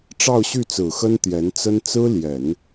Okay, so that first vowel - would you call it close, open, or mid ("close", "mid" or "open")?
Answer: open